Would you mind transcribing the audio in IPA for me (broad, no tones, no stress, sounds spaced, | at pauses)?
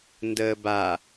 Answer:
n d əː b a